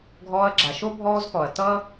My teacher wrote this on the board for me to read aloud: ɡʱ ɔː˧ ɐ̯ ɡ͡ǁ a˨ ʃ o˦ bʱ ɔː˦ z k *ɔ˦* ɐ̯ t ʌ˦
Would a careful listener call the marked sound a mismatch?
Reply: yes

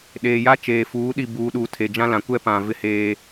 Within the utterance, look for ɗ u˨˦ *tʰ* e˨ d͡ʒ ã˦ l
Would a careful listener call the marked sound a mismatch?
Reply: no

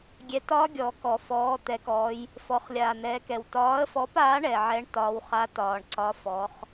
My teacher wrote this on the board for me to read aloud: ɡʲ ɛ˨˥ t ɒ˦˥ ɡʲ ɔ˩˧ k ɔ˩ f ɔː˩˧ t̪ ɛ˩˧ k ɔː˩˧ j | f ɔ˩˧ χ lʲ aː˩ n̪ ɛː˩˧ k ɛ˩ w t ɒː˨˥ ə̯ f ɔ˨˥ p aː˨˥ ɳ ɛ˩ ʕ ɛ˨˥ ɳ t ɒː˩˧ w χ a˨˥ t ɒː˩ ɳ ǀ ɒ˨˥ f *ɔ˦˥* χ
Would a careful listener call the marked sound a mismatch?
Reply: yes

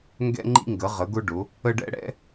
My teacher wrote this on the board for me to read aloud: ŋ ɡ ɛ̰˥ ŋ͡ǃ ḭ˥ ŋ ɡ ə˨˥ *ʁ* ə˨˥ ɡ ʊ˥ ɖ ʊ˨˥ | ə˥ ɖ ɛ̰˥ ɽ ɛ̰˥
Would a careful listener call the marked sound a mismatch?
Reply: no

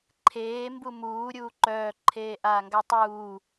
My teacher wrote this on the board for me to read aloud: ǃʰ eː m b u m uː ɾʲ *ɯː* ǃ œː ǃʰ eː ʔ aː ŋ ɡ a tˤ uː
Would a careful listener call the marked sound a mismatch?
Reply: yes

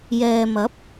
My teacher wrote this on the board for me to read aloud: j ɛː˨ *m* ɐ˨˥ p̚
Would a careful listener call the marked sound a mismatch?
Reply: no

